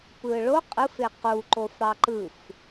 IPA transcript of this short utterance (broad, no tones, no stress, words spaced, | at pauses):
pɯɭo qʼɯfe quǃof ɽɑǃɯf